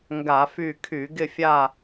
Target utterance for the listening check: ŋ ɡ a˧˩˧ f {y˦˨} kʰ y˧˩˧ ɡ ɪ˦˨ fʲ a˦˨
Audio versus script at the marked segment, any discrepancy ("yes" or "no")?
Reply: no